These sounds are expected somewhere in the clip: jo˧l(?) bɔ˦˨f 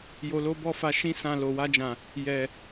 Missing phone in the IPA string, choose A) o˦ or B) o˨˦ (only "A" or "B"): A